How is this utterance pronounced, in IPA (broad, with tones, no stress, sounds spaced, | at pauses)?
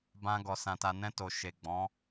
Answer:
b ã˧ ɡ ɔ˨ s ã˨ t a˨ n ɛ̃˧ t o˨ ʃ e˨ ɡ͡b ɔ̃˨˦